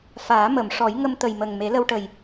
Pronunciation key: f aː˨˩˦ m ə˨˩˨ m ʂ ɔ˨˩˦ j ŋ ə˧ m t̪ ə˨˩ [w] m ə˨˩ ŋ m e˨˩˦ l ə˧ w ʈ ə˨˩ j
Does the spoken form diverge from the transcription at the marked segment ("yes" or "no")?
yes